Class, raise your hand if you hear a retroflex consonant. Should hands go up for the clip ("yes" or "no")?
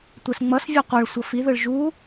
yes